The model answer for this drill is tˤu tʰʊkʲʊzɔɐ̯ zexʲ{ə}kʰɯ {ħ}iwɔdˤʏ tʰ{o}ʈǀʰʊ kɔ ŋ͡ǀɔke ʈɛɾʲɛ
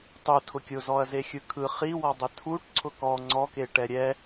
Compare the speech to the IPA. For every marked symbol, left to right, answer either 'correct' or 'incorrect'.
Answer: incorrect: ɯ, incorrect: χ, incorrect: u

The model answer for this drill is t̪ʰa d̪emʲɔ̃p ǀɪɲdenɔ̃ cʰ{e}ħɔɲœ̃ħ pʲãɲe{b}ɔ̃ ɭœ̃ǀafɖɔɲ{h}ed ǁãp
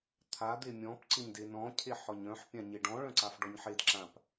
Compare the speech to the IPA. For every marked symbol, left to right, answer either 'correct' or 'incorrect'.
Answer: correct, incorrect: ɖ, incorrect: ħ

